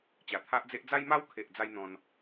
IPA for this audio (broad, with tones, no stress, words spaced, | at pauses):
t͡ɕa˨˩t̪ʰa˦ʔd͡ze˦ʔ d͡za˦jma˦wkʰe˨ʔ d͡za˦jn̪ɔ̃˧n